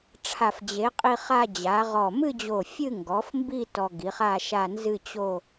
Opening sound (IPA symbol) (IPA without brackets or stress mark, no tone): ʈ͡ʂʰ